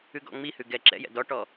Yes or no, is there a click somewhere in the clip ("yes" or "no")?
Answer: yes